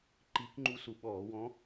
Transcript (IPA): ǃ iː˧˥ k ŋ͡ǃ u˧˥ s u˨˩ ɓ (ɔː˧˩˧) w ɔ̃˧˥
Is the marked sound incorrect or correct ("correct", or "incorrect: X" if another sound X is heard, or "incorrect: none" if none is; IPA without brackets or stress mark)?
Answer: correct